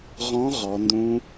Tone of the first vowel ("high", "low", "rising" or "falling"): rising